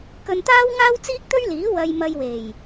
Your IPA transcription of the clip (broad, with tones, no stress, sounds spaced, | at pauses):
k ɵ˧ n t̪ aː˥ w ŋ aː˥ w t͡s iː˥ k̚ t̪ ɵ˥ ɥ l iː˨˥ w ɐ˧ j m ɐ˧ j w e˨˩ j